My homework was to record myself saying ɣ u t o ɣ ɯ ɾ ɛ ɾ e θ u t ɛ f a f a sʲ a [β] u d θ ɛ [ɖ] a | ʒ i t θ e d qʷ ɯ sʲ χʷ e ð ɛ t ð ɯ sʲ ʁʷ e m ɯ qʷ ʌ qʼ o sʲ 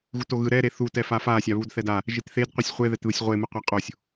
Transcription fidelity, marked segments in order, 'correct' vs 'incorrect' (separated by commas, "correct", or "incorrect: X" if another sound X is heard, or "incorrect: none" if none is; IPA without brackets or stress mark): correct, incorrect: d